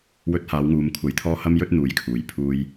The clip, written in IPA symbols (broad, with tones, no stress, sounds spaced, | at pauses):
w ɵ˧ t̚ h aː˨˧ w ŋ uː˨ m kʷʰ ɐ˨˧ j t̪ʰ ɔː˧ h ɐ˥ m j ɵ˥ t̚ n̪ uː˨˧ j kʰ uː˨ j pʰ uː˧ j